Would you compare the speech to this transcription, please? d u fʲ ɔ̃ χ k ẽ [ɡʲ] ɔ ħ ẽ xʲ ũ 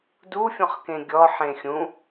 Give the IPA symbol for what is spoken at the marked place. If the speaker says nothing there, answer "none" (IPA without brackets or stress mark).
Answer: ɡʲ